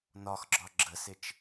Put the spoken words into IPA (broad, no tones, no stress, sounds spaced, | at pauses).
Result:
n ɒ x ɡ͡ǁ ɒ ɡ͡ǁ ə s ɪ t͡ʃ